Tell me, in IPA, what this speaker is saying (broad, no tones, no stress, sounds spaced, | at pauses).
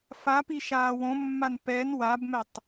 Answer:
f a p i ʃ aː w õ mː a n p ɛ n w a b m ɛ tˤ